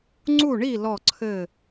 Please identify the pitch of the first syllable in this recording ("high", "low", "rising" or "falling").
falling